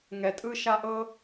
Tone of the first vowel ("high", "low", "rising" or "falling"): low